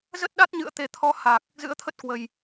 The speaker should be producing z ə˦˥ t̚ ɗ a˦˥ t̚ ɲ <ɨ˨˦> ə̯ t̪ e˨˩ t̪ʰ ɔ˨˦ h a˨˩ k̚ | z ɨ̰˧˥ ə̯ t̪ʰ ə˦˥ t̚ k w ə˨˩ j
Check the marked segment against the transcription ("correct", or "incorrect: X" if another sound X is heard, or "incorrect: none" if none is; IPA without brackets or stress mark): incorrect: ɨ̰˧˨